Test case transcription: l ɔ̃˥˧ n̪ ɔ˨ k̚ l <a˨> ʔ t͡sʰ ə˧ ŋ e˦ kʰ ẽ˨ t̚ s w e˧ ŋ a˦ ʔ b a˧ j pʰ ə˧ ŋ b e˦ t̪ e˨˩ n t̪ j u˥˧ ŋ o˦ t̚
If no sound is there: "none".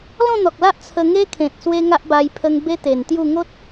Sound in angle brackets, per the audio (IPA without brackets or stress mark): a˦